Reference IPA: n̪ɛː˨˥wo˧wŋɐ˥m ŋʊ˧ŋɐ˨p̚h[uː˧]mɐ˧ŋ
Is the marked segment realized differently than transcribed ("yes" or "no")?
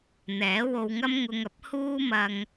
yes